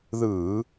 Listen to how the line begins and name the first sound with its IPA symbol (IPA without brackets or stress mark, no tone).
ð